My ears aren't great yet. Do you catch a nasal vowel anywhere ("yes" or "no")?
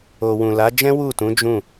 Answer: yes